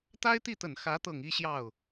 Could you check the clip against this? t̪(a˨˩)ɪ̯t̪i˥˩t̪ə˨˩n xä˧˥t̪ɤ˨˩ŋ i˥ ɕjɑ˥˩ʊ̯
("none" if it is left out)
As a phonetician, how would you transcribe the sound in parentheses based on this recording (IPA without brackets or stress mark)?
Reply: a˥